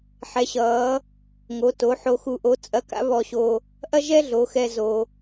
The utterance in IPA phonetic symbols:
ħ ɛ˩˧ ɕ ʌː˩˧ | ŋ o˩˧ t o˩˧ ħ o˧ x u˧ ʔ o˧˥ t͡sʼ ɐ˧˥ k a̰˥ β ɔ˧ ɕ o˧ | ʔ ɐ˥ ʒ ɛ˥ ɮ o˩˧ x ɛ˧ z o˧

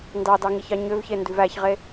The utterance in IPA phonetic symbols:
n d ɑ d ɑ ŋ i ç ɑ ɲ ø v ç e n d ʉ v æ ç ʁ e

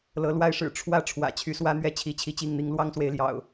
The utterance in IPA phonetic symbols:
l ɤ˨˦ l w a˦ ɪ̯ ʂ ɻ̩˨˩ ʈ͡ʂʰ w ä˦ ʈ͡ʂʰ w ä̰˨˩ t͡ɕʰ y˨˦ s w ä˦ n̪ ɥ ɛ˥˨ t͡ɕʰ i˨˦ t͡ɕʰ i˥˨ t͡ɕ i˥˨ ŋ n̪ i˦ ŋ l w ɑ˦ ŋ s w e˨ ɪ̯ l j ɑ̰˨˩ ʊ̯

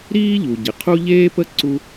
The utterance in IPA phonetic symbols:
ɾ iː˥ ʎ u˩ ɟ ɪ˩ qʰ u˥ ʎ eː˥ p ə˥ ǀ u˥

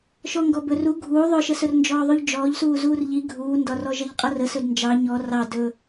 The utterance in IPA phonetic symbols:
ʃ ɔ ŋ ɡ ɔ b ɵ r u ɡʱ uː ðˤ ɵ ʃ ə s ɵ r n d͡ʒ ɔː ðˤ u ʎ d͡ʒ ɔː ʎ s uː z uː r ʎ i ɡʱ uː n d ɒ r ɔ ʒ ʌ ʎ qʼ ʌ r ə s ɵ d n d͡ʒ ɑ ɲ ɔ r ɑ d ɵ

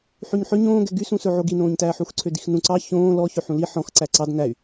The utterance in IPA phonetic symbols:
ħ y ɲ ħ ø ɲ õː ɡ ɛ ɡ y s ũ s ɵ ʕ o ɡ i n õː ɲ t æː ħ u x ǀʰ ø d i x n ũ ǀ ɑ ç õː l ɔ ç ø ħ ũ l i ħ ɔ̃ x ǀ æ ǀ ɑ d n æ y̯

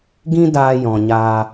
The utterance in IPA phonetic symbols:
ɡ ĩ˦ d aː˧ j ɔ̃˨ ɲ aː˧

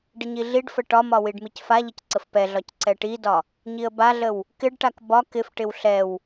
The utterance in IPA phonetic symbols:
ɖ ɪ ɲ i ɮ i ɖ f ə ʈ ɒ m ɒ w i ɖ m i c f a ʎ ə c ǀ ə f p ɛ ɮ ɒ c ǀ ɛ ʈ i d ɒ | ɲ i ə̯ b a ɮ ə w | k ɪ ɖ ʈ a k b ɒ k ɪ f ʈ ɪ w ɬ ɛ w

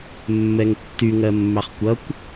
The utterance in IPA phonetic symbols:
mː ɛ ŋ tː y ŋ ɜ mː ɑ χ kʷ ʌ kʷ

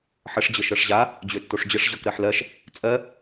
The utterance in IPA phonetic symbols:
ħ ə ʂ d͡ʑ ə ʃ ɤ ʂ ʑ a | d͡ʑ ø tː o ʂ d͡ʑ ə ʂ ʑ ɤ k ɾ ɜ ħ l ɜ ʃ | t͡sʼ ɜ

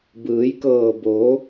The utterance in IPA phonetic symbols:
b ɯː˩˧ j k ɤː˧˩ b oː˩˧

